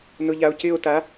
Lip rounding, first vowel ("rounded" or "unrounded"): rounded